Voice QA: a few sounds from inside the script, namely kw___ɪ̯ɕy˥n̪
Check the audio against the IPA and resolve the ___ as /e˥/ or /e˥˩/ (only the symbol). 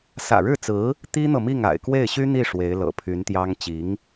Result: e˥˩